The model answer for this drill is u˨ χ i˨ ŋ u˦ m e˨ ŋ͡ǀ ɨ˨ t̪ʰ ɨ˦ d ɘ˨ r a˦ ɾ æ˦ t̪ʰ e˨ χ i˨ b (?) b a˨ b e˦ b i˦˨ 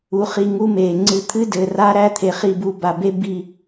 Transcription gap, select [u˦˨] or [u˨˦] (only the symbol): u˨˦